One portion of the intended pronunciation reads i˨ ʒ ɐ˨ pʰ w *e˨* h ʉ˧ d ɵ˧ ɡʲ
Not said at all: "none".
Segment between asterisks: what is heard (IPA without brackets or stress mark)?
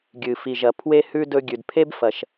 e˧